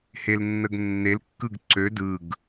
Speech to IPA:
h e l nː ə ɡ nː e l kː ɯ ɡ ǀ ø d ɯ ɡ

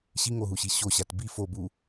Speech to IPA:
ɕ i ŋ o ɦ u ɕ i ɕ o ɕ a t b i f o b u

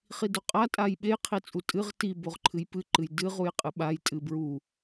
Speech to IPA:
χ i d o qʼ a tʼ a j ɓ e j qʰ i t͡sʼ u tʼ ɨ ʁ t i b o ʁ ǃʰ ɨ j p ɨ ǃ ɨ j d ɨ ʁ u j qʼ ɨ ɓ a j tʼ ɨ b ɹ u

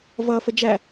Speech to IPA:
v ʌ f ə d͡ʒ æ

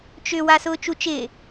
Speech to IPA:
t͡ʃ ʏ w a s ʊː t͡ʃ u t͡ʃ ɪː

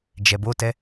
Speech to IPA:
d͡ʒ ɛ b o t ɛ

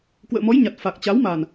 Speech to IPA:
k w ə̰ː˧˨ m ɔ˨˦ j ɲ a˨˩ t̚ f a˨˩ k̚ t͡ɕ a˨˦ w m a˨˩ n

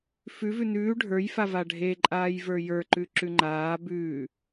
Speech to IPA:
f ʉ v ʉ n ʉː ɖʱ ə˞ j f a v a ɖʱ e ǃʼ aː j v ə˞ j ə˞ ǃ ʉ ǁ ʉ ŋ͡ǃ aː b ʉː

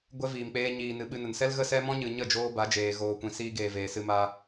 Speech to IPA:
ɡʷ ɛ˦ v iː˨ m k͡p eː˧ ɲ iː˨ n ɨ˨ ɓ ɨ˧ n ə˨ n s ɛ˦ l ɣ ə˦ s ɛ˦ m ɔ̃˦ ɲ ɨ˨ ɲ ə˦˨ d͡ʒ oː˧ b a˨˦ d͡ʒ eː˨ ɣ oː˨ kʷ ĩ˨ s iː˧ ɡ eː˨ v eː˨ s ɨ˧ m a˧

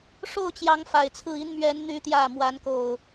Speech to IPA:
ʂ o˥˨ ʊ̯ t͡ɕ j ɑ˨˦ ŋ f a˨˩ ɪ̯ t͡sʰ ɹ̩˥˨ i˦ n m ɥ ɛ˨˦ n n̪ y˨˦ t̪ j ä˨˩ m w a˨˦ n k o˨˩ ʊ̯

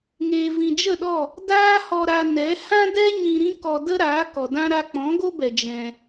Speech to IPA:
ŋ eː˨ v ĩ˨ d͡ʒ ə˦˨ ɗ ɔ˦˨ | d aː˦ h ɔ˧ ɾ a˧ n ɛ˨˦ h ã˦ d ɛ˦ ɲ ĩ˧ ɾ ĩ˦ k ɔ˧ d ə˦ ɾ aː˨˦ k ɔ˨ d ã˦ ɾ a˧ k͡p ɔ̃˨˦ ɡ o˦ b ɛ˨ d͡ʒ ɛ̃˧

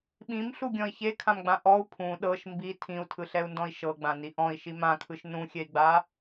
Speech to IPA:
ɓ ĩ m ɬ u ɡʲ ɔ̃ i̯ ç e kʰ ã m ɡ͡b ã ʔ ɔ u̯ pʰ ũ ɗ ɤ ʃ m b i tʰ ĩ u̯ tʰ ɯ ɬ ɛ u̯ n d ɔ̃ i̯ ʃ ɤ ɡ͡b ã n i ʔ ɔ̃ i̯ ʃ i m ã kʰ ɯ ʃ n ũ xʲ ɛ i̯ ɡ͡b a

